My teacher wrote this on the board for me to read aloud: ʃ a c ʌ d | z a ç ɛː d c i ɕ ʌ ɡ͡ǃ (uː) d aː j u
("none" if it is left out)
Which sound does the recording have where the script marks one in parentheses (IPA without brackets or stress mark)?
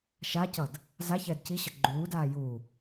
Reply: uː